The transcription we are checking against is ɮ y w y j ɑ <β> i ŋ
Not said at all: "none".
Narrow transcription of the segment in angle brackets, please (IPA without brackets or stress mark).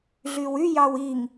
w